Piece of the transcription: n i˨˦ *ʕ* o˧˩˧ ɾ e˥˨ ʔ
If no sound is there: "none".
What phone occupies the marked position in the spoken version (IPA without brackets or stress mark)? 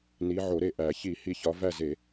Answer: ʕ